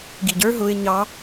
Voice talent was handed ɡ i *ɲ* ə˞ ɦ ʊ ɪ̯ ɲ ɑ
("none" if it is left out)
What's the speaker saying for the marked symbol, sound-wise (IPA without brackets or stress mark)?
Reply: ɟ